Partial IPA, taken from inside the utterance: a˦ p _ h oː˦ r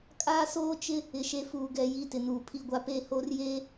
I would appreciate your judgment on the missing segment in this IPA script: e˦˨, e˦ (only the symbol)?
e˦˨